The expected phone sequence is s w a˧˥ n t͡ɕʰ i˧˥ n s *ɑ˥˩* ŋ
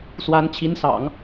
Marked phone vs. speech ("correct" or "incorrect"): incorrect